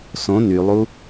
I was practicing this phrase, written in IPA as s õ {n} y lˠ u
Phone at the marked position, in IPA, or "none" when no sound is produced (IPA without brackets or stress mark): n